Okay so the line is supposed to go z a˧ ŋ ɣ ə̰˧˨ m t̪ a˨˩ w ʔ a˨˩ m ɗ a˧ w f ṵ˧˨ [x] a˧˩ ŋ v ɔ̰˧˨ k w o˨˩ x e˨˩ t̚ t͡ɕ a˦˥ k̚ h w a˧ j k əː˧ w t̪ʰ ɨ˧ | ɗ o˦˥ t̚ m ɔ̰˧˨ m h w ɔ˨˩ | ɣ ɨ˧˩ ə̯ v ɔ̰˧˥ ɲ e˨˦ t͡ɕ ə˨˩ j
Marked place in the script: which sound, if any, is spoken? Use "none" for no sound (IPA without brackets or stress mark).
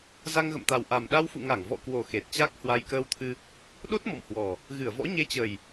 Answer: ŋ